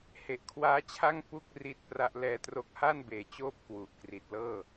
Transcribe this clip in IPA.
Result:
h e˨˩ ʔ kʰ w aː˦˥ t͡ɕʰ a˥˩ ŋ p u˥˩ k̚ r i˦˥ t̚ p r a˦˥ ʔ l ɛː˧ t r o˦˥ k̚ h a˥˩ n b eː˨˩ t͡ɕ oː˥˩ p̚ k w u˨˩ ʔ k r i˨˩ t̚ l ɤː˥˩

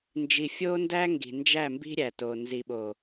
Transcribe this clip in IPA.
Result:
n d͡ʒ i˨ fʲ o˦ n d æ˦ ŋ ɡ i̤˨ n d͡ʒ æ˦˨ m b i̤˦ ɾʲ æ˨ t o˨ n z i˨ ɓ o˨

